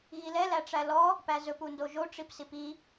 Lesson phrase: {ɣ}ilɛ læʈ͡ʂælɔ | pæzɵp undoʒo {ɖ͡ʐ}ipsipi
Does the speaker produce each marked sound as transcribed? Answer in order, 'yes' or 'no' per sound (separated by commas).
yes, no